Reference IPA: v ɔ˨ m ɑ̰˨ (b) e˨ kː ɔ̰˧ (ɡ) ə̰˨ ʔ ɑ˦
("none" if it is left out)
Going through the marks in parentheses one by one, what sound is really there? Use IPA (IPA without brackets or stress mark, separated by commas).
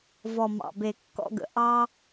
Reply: b, ɡ